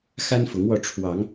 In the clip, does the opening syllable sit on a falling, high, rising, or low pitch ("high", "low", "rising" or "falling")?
high